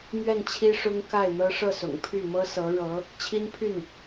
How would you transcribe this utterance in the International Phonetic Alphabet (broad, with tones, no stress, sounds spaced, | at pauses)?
m ɥ ɛ˥˩ n t͡ɕʰ i˥ ʂ ʊ˥ ŋ k a˥˩ ɪ̯ n̪ ɤ˥ ʂ ɤ˥˩ s ʊ̰˨˩ ŋ pʰ y˥˩ m ɤ˥ s ɤ˧˥ ɻ ɤ˧˥ | t͡ɕʰ i˥ n pʰ y˥˩ n